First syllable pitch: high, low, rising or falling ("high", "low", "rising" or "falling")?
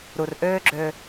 low